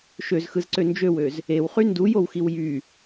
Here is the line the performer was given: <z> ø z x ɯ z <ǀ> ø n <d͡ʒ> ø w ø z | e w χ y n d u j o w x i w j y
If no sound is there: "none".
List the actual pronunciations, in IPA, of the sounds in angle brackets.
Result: ʃ, ǀ, d͡ʒ

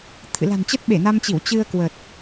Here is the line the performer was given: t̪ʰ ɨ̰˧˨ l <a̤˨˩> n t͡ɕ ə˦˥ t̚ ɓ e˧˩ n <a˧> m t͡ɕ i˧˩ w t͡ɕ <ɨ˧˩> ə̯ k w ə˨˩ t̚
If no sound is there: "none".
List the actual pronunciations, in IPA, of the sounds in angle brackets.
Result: a̤˨˩, a˧, ɨ˧

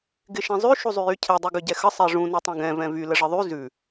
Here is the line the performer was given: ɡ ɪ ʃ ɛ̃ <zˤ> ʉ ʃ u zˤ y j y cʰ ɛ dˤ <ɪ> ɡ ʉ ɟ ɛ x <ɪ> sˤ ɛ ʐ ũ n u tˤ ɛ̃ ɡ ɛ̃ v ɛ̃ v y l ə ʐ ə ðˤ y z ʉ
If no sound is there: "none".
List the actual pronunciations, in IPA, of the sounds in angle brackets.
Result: zˤ, y, ə

